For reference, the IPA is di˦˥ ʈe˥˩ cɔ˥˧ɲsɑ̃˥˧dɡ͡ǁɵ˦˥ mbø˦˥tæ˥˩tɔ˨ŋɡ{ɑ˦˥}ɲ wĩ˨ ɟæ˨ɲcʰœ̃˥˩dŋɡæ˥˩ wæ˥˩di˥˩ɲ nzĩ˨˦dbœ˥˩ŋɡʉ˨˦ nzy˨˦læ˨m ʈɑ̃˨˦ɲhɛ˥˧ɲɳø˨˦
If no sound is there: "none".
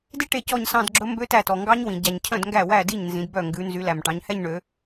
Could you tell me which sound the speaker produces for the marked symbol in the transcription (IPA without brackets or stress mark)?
ɑ˦˥